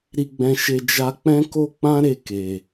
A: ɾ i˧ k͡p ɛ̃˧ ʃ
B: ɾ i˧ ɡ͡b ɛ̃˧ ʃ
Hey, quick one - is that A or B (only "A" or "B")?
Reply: B